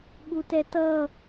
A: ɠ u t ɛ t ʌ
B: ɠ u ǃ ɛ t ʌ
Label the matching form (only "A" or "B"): A